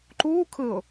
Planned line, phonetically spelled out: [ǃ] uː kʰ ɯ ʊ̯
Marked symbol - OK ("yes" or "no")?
yes